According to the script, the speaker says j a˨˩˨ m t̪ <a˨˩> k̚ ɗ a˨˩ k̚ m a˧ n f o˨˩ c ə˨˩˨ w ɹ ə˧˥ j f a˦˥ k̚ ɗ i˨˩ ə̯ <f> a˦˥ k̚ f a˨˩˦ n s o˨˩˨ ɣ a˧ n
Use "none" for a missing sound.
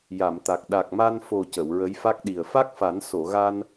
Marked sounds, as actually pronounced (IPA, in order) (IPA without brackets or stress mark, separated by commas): a˨˩, f